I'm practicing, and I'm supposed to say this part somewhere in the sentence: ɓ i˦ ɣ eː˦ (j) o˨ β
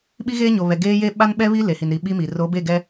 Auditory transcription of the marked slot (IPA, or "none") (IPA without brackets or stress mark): ɲ